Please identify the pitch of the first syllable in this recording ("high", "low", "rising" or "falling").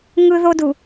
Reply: high